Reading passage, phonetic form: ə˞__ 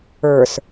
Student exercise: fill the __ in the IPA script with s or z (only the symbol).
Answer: s